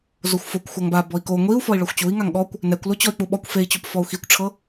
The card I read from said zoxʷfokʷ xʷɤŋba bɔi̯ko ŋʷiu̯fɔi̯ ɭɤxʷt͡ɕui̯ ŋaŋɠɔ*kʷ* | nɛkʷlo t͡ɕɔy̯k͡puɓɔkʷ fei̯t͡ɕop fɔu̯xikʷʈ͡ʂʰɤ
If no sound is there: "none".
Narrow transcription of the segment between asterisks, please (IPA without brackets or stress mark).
kʷ